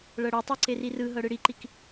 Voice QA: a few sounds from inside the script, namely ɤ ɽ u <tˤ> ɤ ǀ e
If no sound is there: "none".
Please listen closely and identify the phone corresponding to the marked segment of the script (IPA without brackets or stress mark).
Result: tˤ